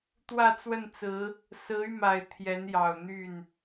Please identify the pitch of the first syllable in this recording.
falling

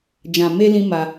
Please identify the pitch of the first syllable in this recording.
low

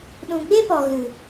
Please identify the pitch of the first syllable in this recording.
low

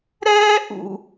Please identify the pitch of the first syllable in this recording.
high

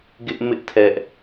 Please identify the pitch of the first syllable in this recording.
high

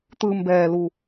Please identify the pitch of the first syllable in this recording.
low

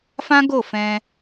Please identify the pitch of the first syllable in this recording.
high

